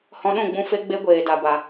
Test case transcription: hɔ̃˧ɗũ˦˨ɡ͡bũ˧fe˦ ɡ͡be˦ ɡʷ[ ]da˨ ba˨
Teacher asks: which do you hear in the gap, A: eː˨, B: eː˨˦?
A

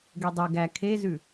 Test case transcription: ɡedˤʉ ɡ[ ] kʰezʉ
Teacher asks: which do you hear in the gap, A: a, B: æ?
B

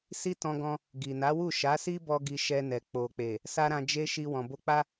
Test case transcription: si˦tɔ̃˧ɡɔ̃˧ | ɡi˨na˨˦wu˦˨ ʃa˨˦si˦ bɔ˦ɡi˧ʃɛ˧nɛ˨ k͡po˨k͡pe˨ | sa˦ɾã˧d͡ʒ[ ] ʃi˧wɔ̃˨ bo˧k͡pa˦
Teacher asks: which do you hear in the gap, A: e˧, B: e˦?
B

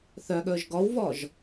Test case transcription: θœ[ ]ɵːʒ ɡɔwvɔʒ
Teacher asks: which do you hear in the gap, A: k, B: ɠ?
B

